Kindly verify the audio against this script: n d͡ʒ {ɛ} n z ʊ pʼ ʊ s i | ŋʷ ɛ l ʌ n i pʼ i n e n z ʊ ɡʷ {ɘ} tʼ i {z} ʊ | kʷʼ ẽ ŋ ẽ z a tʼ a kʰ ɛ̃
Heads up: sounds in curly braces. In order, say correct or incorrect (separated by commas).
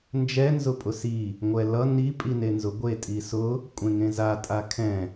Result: correct, incorrect, incorrect